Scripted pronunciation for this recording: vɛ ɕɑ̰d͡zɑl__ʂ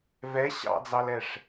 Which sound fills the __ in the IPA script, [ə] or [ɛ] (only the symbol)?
ɛ